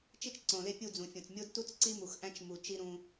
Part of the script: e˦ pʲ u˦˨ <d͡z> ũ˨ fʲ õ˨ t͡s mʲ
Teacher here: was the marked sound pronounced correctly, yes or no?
yes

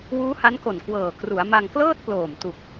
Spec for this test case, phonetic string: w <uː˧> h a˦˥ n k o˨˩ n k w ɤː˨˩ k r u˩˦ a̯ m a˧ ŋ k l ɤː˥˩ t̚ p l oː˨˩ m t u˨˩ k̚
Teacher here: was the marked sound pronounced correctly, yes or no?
no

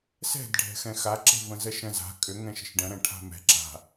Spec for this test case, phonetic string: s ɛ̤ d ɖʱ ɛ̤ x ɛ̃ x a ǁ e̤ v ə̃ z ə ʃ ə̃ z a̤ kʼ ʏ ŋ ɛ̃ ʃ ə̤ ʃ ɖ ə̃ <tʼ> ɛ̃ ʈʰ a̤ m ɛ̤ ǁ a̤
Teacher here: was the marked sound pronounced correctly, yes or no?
no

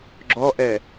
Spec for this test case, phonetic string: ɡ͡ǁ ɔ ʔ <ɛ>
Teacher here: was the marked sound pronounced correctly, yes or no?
yes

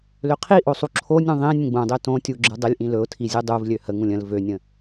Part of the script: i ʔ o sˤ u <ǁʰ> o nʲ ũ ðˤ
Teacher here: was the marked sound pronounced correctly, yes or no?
yes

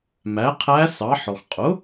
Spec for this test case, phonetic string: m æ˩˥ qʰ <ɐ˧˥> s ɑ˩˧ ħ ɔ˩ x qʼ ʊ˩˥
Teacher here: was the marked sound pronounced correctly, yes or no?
no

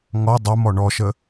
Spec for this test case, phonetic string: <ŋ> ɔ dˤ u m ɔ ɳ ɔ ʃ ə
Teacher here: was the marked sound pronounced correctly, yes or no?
yes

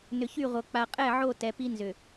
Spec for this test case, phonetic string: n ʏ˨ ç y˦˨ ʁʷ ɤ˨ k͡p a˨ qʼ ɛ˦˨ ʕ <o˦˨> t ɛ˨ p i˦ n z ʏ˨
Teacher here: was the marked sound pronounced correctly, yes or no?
yes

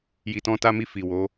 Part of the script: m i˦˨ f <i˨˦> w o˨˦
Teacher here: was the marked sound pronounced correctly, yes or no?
no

